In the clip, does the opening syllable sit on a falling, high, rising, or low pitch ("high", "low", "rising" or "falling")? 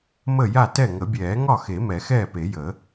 falling